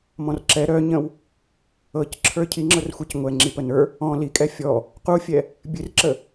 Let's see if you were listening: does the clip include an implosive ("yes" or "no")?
no